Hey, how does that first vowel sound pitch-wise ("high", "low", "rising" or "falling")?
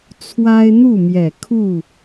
high